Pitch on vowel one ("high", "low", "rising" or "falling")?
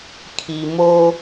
low